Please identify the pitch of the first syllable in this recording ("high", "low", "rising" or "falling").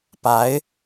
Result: rising